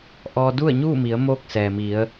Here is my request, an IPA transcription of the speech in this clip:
ʔ ɔː˧ d u˥˨ ə̯ ɲ uː˥˨ m i˩˧ ə̯ m oː˥˨ k̚ s ɛː˩ m i˩˧ ə̯

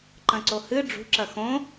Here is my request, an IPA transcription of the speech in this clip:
ǃ ɐ̃ ǀ o h ɨ ɖ͡ʐ ṳ ǁ ɐ x õ

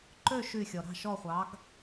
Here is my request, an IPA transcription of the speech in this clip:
ǃ ø˥˨ ʃ y˧˩ xʲ ɔ˩ ɾ ɑ̤˧˩ ʃ ɔ˧˩ χʷ ɑ˩˧ ɡ

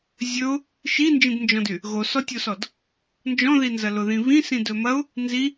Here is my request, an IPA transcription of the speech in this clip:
zʲ ɵ ʊ̯ | ʃ i n d͡ʒ ĩ d n d͡ʒ ɔ̃ d y | ɣ o s ɔ tʲ o s ɔ d | n d͡ʒ ɔ̃ ð i n z ɐ l ʊ ð ĩ β ĩ s ĩ d ɵ m ɐ ʊ̯ | n z i

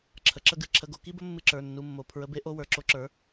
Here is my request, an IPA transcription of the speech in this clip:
ǁʰ ə˨˥ ǁ ə˥ ɡ ɨ˧˥˧ ǁʰ ə˧˥˧ ɡ o˨˥ k i˥ b ə˥ mː ɨ˥ ǁ ə˞˧˥˧ nː u˧˥˧ mː o˧˥˧ pʰ ɹ ə˧˥˧ b e˥ ʔ o˧˥˧ w ə˞˨˥ ǁ o˨˥ ǁ ə˞˨˥

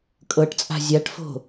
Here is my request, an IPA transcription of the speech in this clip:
kʼ ɤ ʈ t͡sʼ a̤ zʲ a ʈ f o̤

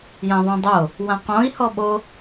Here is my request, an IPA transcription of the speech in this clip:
j ã ðˤ õ dˤ o | w ã q õ i̯ h ɔ ɓ o

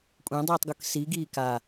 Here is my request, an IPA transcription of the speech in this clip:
kʷʼ ẽ dˤ iː tˤ ɡ ʊ k s i ɡ iː k a

